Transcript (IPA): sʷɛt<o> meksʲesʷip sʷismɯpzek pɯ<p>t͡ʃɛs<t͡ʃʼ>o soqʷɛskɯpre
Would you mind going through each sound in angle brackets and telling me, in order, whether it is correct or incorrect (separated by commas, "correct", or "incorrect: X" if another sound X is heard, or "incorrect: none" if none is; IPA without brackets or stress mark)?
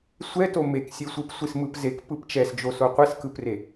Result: correct, correct, incorrect: d͡ʒ